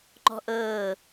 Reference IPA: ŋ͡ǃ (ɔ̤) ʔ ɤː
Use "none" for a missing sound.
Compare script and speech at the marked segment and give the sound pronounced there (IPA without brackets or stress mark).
ɔ̤